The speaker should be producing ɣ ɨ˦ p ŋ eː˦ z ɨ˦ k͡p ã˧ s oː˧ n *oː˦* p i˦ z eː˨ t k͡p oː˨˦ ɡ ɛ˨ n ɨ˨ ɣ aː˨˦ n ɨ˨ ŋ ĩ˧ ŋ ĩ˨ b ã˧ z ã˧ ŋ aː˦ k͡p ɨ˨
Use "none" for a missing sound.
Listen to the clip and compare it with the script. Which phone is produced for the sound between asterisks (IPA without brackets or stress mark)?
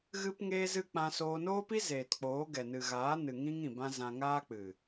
oː˦